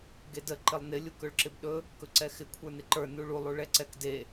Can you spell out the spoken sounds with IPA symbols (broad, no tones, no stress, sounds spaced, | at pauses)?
ɡ e d ə ǃ ɪ lˠ n ɪ lʲ u k ɵ ɭ ǁ ɪ b ɗ ɵ | k ɵ ǀ ɛ x ɪ kʷʰ ə˞ n ɪ ǃ ə˞ n u ɭ u lˠ u ɭ ɛ ǀ ɛ k d e